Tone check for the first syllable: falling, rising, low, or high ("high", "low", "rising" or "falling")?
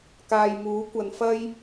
low